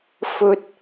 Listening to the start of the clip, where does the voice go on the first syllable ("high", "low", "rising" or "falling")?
high